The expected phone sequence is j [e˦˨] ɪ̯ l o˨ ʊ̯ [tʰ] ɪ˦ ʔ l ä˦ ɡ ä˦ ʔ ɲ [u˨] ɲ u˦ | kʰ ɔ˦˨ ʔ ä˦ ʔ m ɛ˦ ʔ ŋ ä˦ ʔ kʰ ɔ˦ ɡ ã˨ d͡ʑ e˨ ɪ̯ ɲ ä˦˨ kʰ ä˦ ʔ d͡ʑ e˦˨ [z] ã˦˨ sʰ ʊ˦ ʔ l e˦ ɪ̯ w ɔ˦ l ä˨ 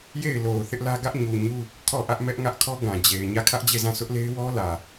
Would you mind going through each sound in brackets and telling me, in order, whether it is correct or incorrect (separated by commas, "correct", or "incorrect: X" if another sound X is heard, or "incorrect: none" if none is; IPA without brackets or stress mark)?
correct, incorrect: θ, correct, correct